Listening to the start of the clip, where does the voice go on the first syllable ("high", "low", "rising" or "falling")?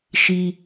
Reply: high